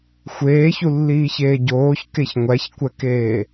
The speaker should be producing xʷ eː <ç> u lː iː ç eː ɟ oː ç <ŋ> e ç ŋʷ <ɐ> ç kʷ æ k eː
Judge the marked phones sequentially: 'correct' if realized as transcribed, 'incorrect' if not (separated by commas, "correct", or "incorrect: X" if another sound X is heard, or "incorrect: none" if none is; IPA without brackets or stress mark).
correct, incorrect: k, incorrect: æ